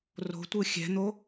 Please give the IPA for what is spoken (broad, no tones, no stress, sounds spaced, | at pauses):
r o̤ tʷ ɯ xʲ ɛ̤ n̪ o